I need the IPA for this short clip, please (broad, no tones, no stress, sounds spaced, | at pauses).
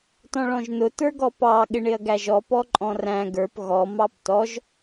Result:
t ɔ̃ ɭ ɔ̃ ʒ n ʊ t ə˞ ɡ ɔ p ɑ ɠ ɪ ɳ ɪ ɐ̯ ɡ æ ʒ ɔ p ɔ ǃʼ ɔ̃ r æ̃ ɡ ə˞ p ɣ ɔ m ɑ p t ɔ ʒ